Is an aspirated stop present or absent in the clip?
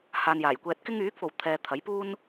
present